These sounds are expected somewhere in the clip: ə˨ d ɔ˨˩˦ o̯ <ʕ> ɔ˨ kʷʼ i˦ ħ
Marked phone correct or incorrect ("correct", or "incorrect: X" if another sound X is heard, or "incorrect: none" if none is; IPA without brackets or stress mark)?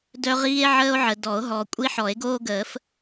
incorrect: ɦ